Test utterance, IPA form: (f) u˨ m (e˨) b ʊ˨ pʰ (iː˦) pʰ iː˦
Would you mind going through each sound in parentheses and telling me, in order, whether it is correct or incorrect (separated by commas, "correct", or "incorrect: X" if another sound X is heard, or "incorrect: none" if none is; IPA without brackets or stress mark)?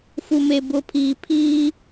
correct, correct, incorrect: iː˨